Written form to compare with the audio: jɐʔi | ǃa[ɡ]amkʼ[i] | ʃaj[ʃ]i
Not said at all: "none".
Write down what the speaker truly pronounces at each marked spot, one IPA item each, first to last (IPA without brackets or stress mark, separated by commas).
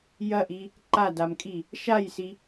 d, i, s